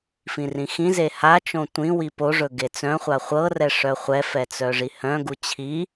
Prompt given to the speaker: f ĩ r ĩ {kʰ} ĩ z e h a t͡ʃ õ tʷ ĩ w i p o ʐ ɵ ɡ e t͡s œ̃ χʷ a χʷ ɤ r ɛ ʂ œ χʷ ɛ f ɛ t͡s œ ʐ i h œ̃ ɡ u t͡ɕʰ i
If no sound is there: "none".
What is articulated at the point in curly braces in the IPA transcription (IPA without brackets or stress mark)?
x